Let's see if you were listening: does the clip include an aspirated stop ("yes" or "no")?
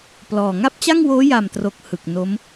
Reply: no